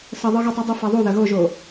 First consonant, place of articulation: alveolar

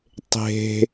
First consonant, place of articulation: alveolar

